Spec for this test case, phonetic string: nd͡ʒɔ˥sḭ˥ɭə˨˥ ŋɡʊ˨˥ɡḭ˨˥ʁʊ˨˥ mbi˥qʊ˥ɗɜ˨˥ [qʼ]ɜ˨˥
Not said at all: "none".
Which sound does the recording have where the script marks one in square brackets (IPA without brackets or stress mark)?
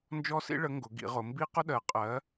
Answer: qʼ